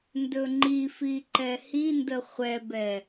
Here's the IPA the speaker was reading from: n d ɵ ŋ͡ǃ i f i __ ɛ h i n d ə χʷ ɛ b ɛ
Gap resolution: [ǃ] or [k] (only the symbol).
ǃ